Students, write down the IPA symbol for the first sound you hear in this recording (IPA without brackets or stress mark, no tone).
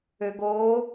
ø